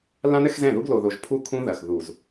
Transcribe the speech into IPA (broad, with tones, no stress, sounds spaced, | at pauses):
l ã˦ n ɘ˦ x z ɛ̃˦˨ ð u˦ ɡ l o˨ ð o˨ ʒ pʰ u˦˨ kʰ ũ˦ ð ɐ˨ x ð u˨ z